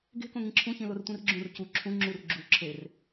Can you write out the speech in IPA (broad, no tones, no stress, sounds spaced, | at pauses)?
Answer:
ɡ e̤ k õ ŋ ĩ ǁʰ ũ ç ĩ l o r tʷ ĩ r ɡ͡ǁ ũ r c u ǁʰ ũ ŋ͡ǁ u r ɡ͡ǁ u ǁʰ e r